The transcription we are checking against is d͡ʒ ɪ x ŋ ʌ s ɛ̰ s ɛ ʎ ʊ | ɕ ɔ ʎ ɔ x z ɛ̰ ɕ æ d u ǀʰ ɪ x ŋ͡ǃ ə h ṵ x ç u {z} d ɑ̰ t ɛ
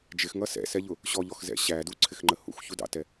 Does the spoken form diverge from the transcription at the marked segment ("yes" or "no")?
yes